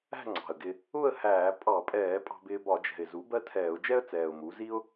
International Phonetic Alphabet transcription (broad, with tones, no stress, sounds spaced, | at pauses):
æ̤˥˨ ŋ͡ǀ ɑ̤˨˩ ə̯ ɡ ɪ˧ | ʊ˥˨ ə̯ h æː˧˩˧ pʼ ɑ˧˩˧ pʼ ɛː˧˩˧ pʼ ɑ̤˧ b ɪː˧ b ɒ˧˩˧ d͡ʒ ɛ̤˨˩ ɪ̯ z u˩˥ b ɜ˥˨ tʰ ɛː˧˩˧ ʊ̯ d͡ʒ ɛ˥ ə̯ t͡s ɛː˨˩ ʊ̯ m u˩˥ z i˥ ʊ̯